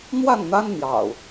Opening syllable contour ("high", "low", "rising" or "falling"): falling